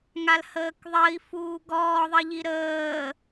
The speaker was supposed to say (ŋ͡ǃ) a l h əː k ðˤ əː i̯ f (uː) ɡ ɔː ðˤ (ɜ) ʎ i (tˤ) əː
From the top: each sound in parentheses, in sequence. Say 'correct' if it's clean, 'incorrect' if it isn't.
incorrect: ŋ, correct, correct, incorrect: ɾ

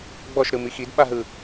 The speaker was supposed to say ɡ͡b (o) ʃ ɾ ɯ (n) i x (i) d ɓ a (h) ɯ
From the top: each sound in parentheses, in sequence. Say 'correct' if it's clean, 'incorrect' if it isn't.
incorrect: ɔ, incorrect: m, correct, incorrect: ɦ

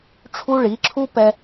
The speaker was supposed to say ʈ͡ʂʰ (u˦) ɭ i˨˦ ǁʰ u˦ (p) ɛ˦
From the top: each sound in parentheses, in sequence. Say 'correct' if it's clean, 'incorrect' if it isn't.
correct, correct

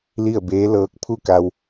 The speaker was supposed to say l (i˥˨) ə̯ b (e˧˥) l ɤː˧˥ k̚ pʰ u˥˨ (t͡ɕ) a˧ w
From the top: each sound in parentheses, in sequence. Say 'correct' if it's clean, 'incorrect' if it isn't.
correct, incorrect: eː˧˥, incorrect: k

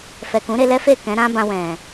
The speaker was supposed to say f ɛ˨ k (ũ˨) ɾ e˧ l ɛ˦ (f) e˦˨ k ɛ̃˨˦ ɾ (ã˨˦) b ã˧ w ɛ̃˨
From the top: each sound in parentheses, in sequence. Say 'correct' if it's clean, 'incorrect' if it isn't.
incorrect: ũ˨˦, correct, incorrect: ã˦

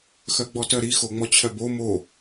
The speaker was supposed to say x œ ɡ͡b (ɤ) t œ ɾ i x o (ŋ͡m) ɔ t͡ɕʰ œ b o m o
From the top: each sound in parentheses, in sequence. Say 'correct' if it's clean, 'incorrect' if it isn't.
incorrect: ɔ, correct

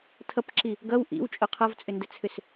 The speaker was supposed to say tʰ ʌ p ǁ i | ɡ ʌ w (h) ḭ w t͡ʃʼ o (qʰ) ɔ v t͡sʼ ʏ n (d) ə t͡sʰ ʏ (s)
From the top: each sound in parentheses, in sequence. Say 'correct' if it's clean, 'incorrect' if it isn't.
incorrect: ʔ, correct, correct, correct

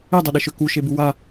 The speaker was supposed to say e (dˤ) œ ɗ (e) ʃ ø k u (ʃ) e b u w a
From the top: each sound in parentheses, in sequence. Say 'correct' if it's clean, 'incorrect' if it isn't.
correct, correct, correct

